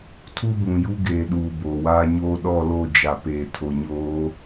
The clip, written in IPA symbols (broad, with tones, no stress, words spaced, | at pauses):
tʰu˦bũ˨ju˦ ɡeː˨ɗuː˨ boː˨waː˦ɲoː˦ ɗɔ˦˨lo˦˨ d͡ʒa˨peː˨tʰo˨ɲoː˨˦